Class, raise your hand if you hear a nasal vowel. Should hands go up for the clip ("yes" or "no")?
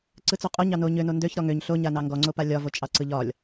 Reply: no